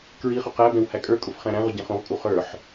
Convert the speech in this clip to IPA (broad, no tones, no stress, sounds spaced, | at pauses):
k ɹ i χ ʊ q æ b ɛ̃ w h æ kʼ ə˞ kʼ ʊ f χ æ̃ ɾ æ̃ ʁ ʊ ɟ ɛ̃ χ ũ ʁ kʼ u χ ə˞ ħ